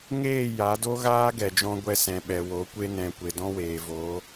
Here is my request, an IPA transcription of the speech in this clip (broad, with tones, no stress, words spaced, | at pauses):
ŋeː˦˨ ja˨˦do˦ɣaː˦ ɡɛ˨d͡ʒɔ̃˧ɡʷɛ˧ sɛ̃˨ɓɛ˨wo˨˦ kʷe˧nɛ̃˨ kʷe˨dɔ̃˦weː˨voː˨˦